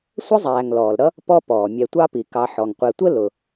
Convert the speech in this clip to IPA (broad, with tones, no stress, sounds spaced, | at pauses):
sʷ ə˥ zˤ æː˨ ŋ l ɔː˩ l ɾ ʌ˥ | p ɔ˥ p ɔː˩ mʲ ɛ˨ tʷ ɑ˦ p i˩ k ɑ˨ ħ ɔ˩ ŋ qʷ ɛ˨ tʷ ə˥ l ʊ˩